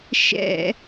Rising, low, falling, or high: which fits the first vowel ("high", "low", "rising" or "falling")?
falling